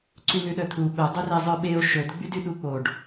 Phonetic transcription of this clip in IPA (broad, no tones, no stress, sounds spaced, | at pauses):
ǀ y n ʉ ɗ œ t̪ʰ u ɓ œ dˤ ɵ r e zˤ œ ɓ e o̯ ʃ ɵ d ɡ͡b y d y ɗ u k͡p o ɖ